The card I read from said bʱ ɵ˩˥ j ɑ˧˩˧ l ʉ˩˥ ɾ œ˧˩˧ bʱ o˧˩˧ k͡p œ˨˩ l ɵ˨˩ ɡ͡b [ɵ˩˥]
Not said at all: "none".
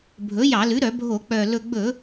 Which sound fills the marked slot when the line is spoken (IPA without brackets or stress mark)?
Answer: ɵ˧˩˧